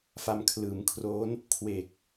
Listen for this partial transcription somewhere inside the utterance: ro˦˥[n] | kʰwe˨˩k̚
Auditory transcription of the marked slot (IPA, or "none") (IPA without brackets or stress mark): n